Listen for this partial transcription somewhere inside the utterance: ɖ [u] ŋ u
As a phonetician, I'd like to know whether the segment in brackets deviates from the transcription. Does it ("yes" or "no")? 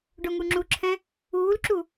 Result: yes